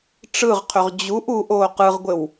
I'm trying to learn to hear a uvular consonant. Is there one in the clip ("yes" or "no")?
yes